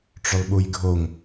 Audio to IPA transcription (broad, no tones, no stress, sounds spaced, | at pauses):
ʈ͡ʂ ʏ lˠ ɓ u j ɡʱ o ŋ